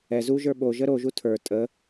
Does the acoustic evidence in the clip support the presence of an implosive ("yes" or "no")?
yes